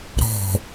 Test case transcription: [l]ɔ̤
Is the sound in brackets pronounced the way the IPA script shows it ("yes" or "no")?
no